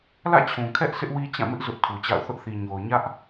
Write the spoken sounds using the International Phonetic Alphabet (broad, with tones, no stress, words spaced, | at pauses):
lä̰˦˨t͡ɕʰũ˨kʰɛ˦ʔ sɪ˦ʔwi˦t͡ɕã˦˨mɪ˦ʔ zʊ˦ʔtʰu˨t͡ɕa̰˦˨ʊ̯ θʊ˦ʔθi˨ɲo˨ʊ̯ ɲä˦ʔ